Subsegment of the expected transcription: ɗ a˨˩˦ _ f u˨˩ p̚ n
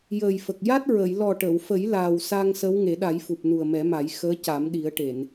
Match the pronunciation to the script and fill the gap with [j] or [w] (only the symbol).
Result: j